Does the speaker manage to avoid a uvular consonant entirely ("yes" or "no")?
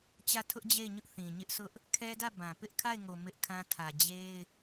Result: yes